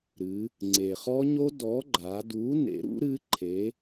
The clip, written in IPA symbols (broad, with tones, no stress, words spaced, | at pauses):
ɾɨ˩˧ | ŋ͡ǀe˩χɔ˦˥ɲo˦˥ dɔ˨˥ɡ͡ǃa˩˧ du˨˥ nḛ˨˥ɾṵ˦˥ ɾɨ˦˥ǃʰe˨˥